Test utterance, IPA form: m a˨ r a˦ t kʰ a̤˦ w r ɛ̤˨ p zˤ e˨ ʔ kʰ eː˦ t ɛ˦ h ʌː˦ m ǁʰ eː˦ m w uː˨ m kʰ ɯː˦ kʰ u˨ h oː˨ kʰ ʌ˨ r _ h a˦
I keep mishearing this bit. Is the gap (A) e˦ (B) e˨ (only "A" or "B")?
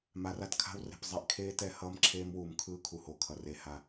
B